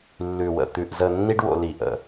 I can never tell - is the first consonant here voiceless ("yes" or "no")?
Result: no